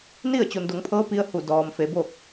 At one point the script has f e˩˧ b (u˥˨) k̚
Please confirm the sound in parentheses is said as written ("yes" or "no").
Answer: no